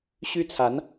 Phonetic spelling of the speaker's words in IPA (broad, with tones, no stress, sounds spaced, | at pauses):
ɕ y˥ t͡sʰ a˧˥ n